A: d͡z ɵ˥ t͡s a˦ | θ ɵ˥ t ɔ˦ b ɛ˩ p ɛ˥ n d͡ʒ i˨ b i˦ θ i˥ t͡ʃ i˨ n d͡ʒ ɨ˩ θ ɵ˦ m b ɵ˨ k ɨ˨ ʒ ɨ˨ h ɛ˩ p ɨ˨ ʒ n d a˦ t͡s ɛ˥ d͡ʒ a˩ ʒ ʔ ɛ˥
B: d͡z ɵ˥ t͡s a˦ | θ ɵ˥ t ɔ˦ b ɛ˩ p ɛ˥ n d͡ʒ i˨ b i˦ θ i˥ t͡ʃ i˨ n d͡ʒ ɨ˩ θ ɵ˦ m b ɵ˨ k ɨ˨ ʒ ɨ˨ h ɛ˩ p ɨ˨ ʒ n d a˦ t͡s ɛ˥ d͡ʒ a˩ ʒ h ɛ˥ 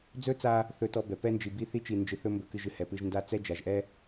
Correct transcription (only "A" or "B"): A